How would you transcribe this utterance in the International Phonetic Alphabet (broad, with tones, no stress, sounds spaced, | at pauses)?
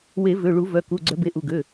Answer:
w e˨˩˦ v ø˩˧˩ ɭ u˨˩˦ v œ˩˧˩ k u˩˧˩ ɡ͡ǀ œ˨˩˦ b e˩˧˩ ʔ u˩˧˩ ɡ ø˩˧˩